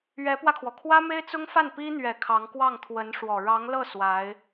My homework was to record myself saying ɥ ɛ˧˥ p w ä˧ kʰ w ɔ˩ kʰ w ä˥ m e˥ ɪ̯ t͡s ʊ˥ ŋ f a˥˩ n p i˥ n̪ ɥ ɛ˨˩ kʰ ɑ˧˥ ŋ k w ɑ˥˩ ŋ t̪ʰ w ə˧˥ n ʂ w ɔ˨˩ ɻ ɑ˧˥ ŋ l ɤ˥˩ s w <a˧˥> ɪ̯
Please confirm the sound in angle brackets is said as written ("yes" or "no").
yes